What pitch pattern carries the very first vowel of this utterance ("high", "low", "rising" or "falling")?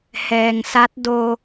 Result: low